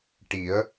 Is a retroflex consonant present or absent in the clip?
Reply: present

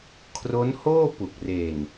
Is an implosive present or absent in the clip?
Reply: absent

